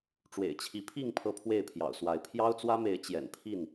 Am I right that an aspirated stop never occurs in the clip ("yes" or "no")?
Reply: no